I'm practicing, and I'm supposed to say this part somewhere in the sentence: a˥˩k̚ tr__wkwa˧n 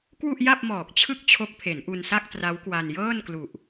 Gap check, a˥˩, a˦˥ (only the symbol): a˦˥